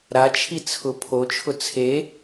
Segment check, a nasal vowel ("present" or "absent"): absent